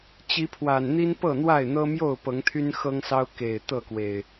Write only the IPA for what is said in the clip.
t͡ɕ i˨˦ pʰ w a˨˩ n n̪ i˦ n p ɤ˥˨ n̪ w a˥˨ ɪ̯ n̪ ɤ˦ m j o˥˨ ʊ̯ p ɤ˨˦ ŋ t̪ʰ y˦ n x ɤ˦ ŋ s ɑ˦ ʊ̯ k e˨˩ ɪ̯ t̪ ɤ˥˨ k w e˨˩ ɪ̯

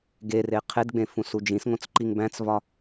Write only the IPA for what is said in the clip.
ɡ e r e qʰ e d ɡ͡b ẽ f ũ s u d͡ʒ ĩ s ŋ õ t͡s ǃ i ŋ b æ̃ t͡s v ɒ

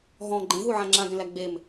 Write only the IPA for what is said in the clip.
ɦ ɔ̃ ɡ͡ǃ ẽ ɦ u ʕ ã ŋ͡ǁ ã ɡ ẽ l æ ɡ͡b e m

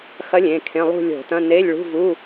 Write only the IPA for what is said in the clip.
x ɐ˧˥ lʲ ẽ˩˧˩ kʰ ẽ˧˥˧ lˠ ṳ˥˧ lʲ o̤˧˩˧ t ɐ̃˧˥˧ n e˧˥˧ lʲ ɭ ṳ˧˥˧ v u˧˥˧

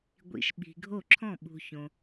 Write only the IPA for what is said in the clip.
ɡʷ ḭ˨ ʃ ɓ i̤˨ ɡʱ o˥˩ ǁʰ ɔ̃˥˩ ɓ ṳ˨ ç õ˨

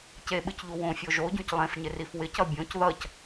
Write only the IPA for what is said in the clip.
c e ɓ ɨ c ʎ u w õ fʲ o ʒ o ɟ ũ c lˠ ẽ f ɲ ɪ r i f w ɪ c ʌ bʲ õ c ð ʌ c

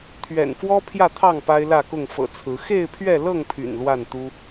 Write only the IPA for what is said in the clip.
t̪ʰ ɥ ɛ̰˨˩ n f w ɔ˦ pʰ j ä˥˨ t̪ʰ ɑ˥˨ ŋ p a˦ ɪ̯ l ä˥˨ k ʊ˥˨ ŋ f ɤ̰˨˩ t͡sʰ ɹ̩˨˦ x e˥˨ ɪ̯ pʰ ɥ ɛ˥˨ l ɤ˥˨ ŋ pʰ y̰˨˩ n l w a˥˨ n t̪ u˦

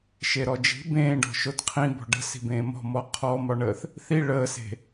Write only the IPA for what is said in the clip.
ʃ e ɾ ɔ d͡ʒ i̤ b ẽː ɖ ɔ̤ ʃ o t qʰ ĩ b ɔ̤ ɖ ə̤ s i̤ b ẽː m ɔ̤ m ɔ qʰ ɔ m ɒ ɳ əː θ | θ i ɭ əː s e̤

